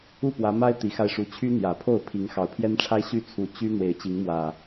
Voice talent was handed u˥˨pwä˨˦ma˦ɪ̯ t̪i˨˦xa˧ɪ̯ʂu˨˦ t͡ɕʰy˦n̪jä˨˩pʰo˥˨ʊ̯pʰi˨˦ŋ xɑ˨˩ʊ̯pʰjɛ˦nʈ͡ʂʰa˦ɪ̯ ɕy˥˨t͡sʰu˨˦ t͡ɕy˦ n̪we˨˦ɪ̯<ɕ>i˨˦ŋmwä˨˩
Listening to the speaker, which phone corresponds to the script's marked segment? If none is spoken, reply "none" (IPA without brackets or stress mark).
t͡ɕ